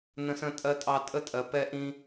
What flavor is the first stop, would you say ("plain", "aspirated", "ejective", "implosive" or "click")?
ejective